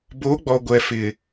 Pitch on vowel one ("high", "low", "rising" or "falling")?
rising